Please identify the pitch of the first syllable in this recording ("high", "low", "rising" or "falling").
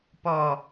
low